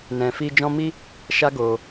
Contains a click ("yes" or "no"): no